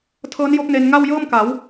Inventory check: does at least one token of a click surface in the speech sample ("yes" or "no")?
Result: no